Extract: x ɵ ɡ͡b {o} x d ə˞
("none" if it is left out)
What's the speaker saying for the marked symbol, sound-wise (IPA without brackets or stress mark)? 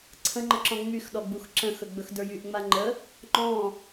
ɵ